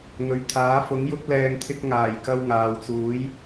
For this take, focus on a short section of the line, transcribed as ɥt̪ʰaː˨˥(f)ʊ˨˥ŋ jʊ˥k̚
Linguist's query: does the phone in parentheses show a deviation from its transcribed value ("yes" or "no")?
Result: no